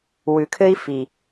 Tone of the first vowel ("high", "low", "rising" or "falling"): low